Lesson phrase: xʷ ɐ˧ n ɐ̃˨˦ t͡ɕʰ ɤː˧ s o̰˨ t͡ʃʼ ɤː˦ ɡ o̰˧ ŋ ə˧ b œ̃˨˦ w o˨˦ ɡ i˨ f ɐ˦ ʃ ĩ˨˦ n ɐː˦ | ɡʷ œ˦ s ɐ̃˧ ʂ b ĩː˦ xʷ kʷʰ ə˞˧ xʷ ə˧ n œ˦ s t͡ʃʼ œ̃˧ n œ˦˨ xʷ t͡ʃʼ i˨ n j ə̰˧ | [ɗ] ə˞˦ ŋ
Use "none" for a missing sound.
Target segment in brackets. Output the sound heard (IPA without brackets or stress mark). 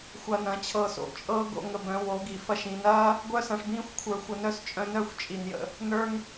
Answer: n